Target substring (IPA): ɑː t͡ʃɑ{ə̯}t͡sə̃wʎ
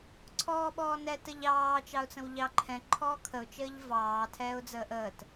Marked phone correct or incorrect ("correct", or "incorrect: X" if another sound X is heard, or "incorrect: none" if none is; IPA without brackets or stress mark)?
incorrect: ʊ̯